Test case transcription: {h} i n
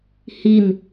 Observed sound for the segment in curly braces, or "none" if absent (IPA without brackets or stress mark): h